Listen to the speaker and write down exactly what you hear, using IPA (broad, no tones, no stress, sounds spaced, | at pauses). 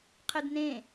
qʰ ɘ d n ẽ